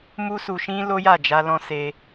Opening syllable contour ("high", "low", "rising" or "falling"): high